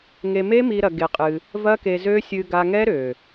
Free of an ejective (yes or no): no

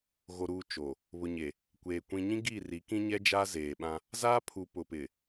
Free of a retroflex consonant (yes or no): yes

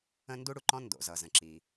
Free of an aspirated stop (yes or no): yes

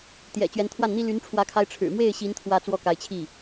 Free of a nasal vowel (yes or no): yes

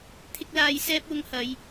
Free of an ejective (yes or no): yes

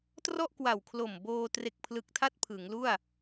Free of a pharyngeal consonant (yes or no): yes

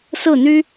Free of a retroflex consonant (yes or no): yes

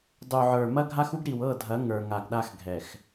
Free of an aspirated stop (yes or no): yes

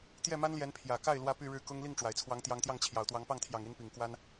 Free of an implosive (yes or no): yes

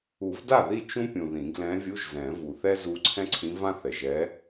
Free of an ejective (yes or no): yes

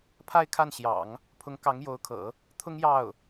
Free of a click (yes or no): yes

